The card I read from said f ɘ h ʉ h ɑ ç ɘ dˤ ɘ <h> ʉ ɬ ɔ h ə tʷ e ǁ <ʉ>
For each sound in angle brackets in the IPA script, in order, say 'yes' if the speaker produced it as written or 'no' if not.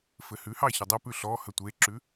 no, yes

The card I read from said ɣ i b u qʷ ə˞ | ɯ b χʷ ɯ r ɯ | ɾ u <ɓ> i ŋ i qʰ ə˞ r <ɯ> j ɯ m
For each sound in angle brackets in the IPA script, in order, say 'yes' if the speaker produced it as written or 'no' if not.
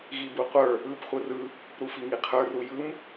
no, no

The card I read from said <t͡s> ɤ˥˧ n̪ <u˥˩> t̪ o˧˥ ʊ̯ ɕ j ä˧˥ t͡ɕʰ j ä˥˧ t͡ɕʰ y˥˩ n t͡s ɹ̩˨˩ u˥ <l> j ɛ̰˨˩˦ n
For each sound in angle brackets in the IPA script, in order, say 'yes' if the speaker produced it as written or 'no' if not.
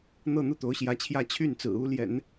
no, yes, yes

